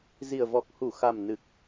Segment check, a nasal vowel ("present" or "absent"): absent